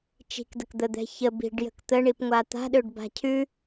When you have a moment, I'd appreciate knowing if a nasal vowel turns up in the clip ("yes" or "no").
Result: no